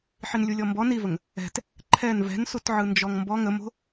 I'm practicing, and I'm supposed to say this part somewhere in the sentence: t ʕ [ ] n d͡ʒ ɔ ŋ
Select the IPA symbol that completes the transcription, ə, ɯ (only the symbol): ɯ